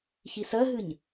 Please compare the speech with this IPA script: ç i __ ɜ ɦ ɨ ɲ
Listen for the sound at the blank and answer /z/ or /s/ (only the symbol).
s